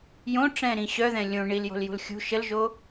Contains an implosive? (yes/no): no